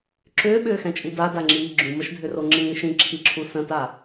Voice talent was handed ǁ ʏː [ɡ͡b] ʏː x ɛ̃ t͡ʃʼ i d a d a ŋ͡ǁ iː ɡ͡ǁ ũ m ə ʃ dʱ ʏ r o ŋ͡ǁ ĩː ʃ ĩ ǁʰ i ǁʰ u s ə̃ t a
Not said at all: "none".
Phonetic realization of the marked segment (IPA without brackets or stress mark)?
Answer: ɓ